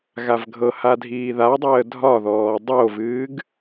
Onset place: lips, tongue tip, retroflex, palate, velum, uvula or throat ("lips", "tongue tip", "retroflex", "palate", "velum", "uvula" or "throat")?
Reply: velum